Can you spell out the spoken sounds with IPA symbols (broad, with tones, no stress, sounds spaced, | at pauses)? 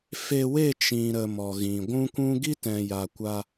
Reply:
f e˧ w e˦˨ t͡ʃ ĩ˨ ɾ ə˨ m ɔ˨ ɣ ĩ˨ ɡʷ ũ˦ kʷ ũ˦ ɡ i˦ t ɛ̃˨ j a˨ kʷ a˧